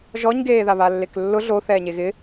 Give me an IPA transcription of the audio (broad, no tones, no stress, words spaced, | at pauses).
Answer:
ʒɔɲɡeːða βalːeklːʊ ɮo θɛːɲeɣɪ